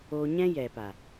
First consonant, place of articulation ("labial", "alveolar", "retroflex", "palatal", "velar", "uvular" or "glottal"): palatal